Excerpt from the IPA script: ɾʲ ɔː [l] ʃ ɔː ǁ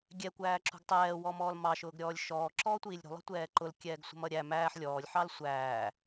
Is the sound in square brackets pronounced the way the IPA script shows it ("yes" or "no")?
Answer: no